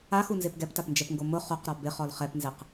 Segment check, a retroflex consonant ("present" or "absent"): absent